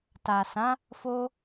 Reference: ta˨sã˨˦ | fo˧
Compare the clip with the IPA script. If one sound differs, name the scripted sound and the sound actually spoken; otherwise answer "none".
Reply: none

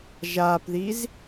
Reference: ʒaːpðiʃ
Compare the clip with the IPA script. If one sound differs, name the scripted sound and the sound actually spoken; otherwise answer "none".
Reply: ʃ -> z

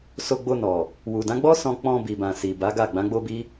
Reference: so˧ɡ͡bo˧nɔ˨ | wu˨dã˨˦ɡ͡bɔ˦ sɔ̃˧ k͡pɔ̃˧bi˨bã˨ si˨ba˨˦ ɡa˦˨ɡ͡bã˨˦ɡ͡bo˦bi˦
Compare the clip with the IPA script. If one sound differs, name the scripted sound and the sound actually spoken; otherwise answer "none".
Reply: none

